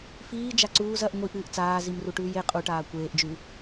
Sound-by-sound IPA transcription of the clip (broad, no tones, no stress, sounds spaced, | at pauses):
f iː d͡ʒ a ǀ uː z ɐ ʔ ŋʷ i ʔ ɨː ʔ t͡s aː z i m r u ʈ ʉː j e qʼ u ʈ aː kʷ eː ʔ d͡ʒ ʉ